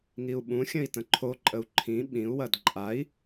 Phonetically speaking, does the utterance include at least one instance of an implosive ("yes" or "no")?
yes